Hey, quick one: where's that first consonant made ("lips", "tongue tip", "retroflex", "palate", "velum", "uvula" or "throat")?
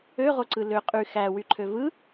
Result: uvula